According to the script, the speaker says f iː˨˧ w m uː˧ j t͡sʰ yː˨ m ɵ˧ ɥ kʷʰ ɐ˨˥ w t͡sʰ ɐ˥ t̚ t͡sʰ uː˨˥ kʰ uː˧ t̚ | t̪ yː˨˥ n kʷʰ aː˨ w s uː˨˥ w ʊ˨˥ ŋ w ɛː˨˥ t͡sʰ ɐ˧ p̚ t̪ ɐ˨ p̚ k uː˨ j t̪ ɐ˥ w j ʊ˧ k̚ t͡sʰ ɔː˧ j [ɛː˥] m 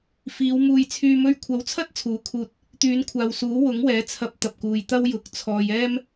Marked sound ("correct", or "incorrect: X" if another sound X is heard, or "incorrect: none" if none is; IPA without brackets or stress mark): correct